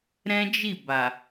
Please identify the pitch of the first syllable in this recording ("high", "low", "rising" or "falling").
high